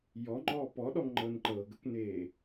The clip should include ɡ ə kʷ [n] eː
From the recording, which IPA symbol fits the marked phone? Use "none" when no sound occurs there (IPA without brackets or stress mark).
n